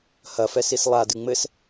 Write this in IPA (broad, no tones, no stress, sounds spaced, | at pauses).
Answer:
h ɐ f ɛ s i s lˠ a d ɨ ŋ͡m ɘ s